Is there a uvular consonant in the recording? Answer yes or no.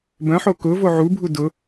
no